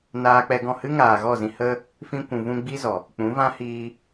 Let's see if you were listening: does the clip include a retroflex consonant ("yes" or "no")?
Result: no